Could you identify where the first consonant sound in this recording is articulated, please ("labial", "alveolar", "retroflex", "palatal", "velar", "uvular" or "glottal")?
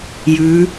palatal